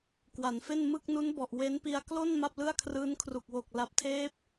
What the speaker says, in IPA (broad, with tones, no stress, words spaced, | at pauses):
kwa˩˦nfe˥˩n mɯ˥˩k̚nu˦˥nbɔ˨˩ʔ we˦˥npi˧a̯ klo˥˩n ma˥˩p̚lɯ˥˩a̯kʰrɯː˦˥n kʰru˨˩k̚wo˨˩k̚ la˨˩p̚tʰeː˦˥p̚